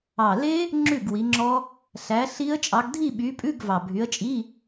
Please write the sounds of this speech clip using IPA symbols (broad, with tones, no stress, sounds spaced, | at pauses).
ɑ˨˩ l e˦˥ | ŋ͡ǁ ʉ˥˩ ɡ w i˨˦ ŋ͡ǁ ɔ˦˥ | ɬ æ˨˦ ɬ i˦˥ ə̯ t͡ʃʼ ɑ˨˦ ɡ dʱ i˥˧ ɓ y˨˦ pʼ ʉ˧˥˧ ɡ v ɑ˨˩ bʱ y˨˦ ə̯ t͡ʃʼ i˧˥˧